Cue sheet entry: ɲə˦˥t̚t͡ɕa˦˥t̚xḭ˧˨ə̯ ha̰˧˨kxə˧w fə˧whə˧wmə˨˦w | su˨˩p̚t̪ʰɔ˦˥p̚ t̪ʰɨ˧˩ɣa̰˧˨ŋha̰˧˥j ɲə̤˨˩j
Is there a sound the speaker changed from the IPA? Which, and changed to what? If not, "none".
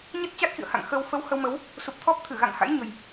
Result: k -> ŋ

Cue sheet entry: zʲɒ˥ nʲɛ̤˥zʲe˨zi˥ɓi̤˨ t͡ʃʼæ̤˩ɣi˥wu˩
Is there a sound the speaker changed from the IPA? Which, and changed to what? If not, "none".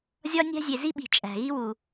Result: ɛ̤˥ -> æ̤˥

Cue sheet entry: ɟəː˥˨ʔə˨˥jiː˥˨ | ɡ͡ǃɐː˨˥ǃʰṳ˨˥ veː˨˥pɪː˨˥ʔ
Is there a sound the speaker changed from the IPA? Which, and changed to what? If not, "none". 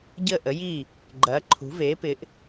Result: none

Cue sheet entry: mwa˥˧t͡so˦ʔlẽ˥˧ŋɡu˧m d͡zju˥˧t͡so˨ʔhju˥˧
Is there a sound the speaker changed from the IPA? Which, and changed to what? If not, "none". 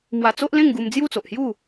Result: a˥˧ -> a˧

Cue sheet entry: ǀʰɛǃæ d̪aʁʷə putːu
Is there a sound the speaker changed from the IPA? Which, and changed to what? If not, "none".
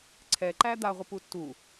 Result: none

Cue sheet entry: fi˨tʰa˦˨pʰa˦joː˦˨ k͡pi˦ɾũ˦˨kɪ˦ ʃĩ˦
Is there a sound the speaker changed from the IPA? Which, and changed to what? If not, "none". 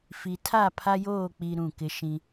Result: none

